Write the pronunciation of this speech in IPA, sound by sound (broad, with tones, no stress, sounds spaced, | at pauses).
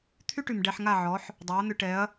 t̪ʰ y˦ ʈ y˨ m ɖ ɛ˧ ħ ŋ a˦˨ ʕ ɔ˨˦ ħ | dˤ œ˨˦ ɐ̯ n̪ ʏ˧ ʈ ɛ˨˦ ɐ̯